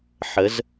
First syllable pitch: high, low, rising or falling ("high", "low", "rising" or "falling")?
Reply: rising